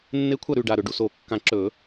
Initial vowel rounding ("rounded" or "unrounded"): unrounded